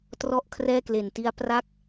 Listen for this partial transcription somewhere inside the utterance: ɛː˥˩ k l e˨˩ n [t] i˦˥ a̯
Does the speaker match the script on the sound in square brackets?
yes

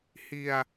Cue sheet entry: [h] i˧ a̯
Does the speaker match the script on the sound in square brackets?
yes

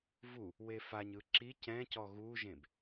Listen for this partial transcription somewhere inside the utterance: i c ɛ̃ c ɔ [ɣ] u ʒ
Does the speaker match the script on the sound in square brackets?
yes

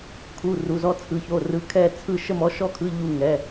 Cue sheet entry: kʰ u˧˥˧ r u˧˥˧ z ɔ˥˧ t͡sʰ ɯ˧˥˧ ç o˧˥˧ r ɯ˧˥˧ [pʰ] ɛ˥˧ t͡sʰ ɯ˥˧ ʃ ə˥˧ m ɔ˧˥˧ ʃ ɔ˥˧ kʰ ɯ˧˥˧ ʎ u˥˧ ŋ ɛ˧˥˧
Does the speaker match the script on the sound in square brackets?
no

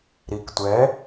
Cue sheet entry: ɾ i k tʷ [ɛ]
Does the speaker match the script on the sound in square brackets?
yes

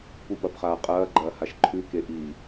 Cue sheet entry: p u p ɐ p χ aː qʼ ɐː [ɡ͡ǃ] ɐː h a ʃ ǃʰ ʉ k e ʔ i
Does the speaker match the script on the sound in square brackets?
yes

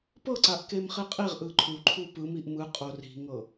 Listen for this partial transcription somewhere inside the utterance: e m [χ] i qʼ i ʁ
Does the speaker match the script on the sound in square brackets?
yes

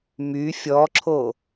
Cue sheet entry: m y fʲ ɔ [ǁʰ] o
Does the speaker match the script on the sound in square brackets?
yes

